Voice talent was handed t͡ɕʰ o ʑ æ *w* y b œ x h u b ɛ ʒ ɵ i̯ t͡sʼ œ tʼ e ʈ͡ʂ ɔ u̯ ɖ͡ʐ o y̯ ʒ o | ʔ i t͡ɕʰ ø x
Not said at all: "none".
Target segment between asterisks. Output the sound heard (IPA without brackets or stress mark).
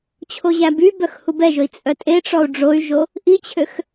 b